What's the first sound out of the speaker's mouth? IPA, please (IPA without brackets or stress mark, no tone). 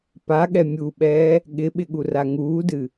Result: p